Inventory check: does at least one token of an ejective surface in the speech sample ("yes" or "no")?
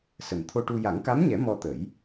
no